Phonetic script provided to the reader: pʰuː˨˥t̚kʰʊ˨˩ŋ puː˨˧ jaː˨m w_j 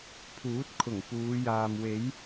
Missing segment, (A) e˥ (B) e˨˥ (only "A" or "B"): B